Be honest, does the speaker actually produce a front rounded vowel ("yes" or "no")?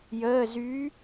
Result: yes